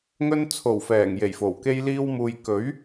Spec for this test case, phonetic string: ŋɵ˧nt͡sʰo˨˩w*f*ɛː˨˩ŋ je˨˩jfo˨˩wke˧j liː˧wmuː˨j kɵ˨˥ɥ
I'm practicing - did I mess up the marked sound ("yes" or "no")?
no